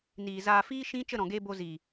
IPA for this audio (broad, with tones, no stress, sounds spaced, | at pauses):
n iː˨ z aː˧ f iː˦ ʃ ĩ˦ t͡ʃ ə˦˨ ɾ ɔ̃˨ ɡ eː˧ b o˧ z iː˨